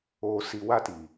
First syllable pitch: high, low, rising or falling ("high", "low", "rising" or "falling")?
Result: low